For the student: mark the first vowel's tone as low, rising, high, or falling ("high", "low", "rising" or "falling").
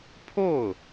falling